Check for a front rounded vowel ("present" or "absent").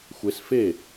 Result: absent